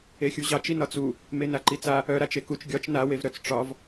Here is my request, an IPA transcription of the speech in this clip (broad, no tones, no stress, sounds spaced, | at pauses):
e xʲ u ʑ ɑ t͡ʃ i n ɒ t͡s u | m e n a ǃ i t͡s a | œ ɾ a t͡ʃ e k u t͡ʃ ɡʲ ɒ t͡ʃ n a w e v ɾ œ t͡s ʈ͡ʂ ɒ v